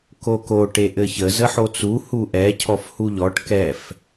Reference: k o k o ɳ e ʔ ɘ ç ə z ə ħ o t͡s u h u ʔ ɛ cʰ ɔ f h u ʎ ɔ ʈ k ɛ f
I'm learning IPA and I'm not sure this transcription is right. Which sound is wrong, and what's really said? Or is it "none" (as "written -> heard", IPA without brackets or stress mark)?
ɳ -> ʈ